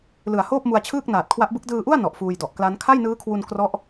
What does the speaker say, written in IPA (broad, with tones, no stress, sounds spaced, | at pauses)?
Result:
l ɯ˨˩ a̯ h oː˥˩ p̚ m u˧ a̯ t͡ɕʰ ɯː˥˩ k̚ n aː˨˩ t̚ kʰ w a˦˥ ʔ b ɯ˦˥ k̚ d ɯː˧ ʔ u˥˩ a̯ n ɔ˨˩ ʔ f uː˧ j d ɔ˨˩ ʔ k l a˦˥ n kʰ a˥˩ j n ɯː˦˥ kʰ w u˧ n k r ɔ˦˥ ʔ